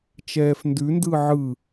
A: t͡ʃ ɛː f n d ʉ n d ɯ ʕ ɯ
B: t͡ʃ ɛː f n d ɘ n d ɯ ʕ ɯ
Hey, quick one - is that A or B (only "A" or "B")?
A